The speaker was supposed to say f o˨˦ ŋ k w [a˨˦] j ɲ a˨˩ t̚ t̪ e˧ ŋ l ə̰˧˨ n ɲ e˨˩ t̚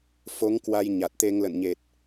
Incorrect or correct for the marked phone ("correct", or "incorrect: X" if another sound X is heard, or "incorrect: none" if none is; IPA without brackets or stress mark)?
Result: incorrect: a˧